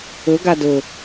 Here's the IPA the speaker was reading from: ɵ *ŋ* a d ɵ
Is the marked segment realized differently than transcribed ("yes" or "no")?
yes